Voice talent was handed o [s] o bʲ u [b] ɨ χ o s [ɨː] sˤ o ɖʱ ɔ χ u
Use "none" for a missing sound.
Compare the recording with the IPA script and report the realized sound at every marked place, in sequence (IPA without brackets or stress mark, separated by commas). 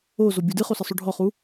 z, d, ɨ